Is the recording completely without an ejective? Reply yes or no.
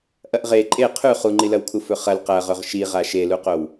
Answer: no